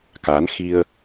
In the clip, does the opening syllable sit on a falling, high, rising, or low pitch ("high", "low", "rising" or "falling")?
rising